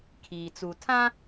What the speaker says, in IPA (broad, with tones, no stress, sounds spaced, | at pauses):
kʰ iː˨ t͡s u˨ tʰ ã˦